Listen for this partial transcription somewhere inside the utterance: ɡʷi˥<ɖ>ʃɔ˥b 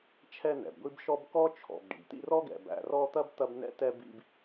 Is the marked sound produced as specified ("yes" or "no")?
no